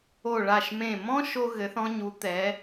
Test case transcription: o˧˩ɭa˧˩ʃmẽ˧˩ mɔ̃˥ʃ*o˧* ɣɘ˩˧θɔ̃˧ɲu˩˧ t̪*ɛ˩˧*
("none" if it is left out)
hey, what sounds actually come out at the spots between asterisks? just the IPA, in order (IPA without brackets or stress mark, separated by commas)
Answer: o˧, ɛ˩˧